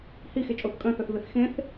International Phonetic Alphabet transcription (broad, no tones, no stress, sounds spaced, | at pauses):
h i x e t͡ʃʼ o θ kʼ œ̃ θ œ θ v e θ x ẽ θ